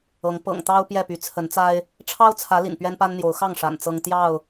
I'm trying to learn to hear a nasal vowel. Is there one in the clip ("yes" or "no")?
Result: no